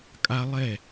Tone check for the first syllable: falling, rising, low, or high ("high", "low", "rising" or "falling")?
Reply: high